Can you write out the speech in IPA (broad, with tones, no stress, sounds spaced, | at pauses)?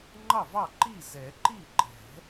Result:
ŋ͡ǃ ɑ˥˩ v ɑ˥˩ ǃ i˥˩ z ɛ˨˩˦ ǃ i˥˩ ǃ ɛ̤˨˩˦